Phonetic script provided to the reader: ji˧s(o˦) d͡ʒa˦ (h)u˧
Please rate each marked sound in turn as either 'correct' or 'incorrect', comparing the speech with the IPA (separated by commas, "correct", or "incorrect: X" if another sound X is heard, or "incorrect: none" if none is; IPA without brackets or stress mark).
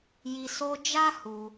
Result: correct, correct